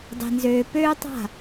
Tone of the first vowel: low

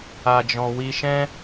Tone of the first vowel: low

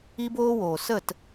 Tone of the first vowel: high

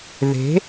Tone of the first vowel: rising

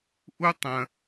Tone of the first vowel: high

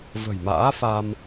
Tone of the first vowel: low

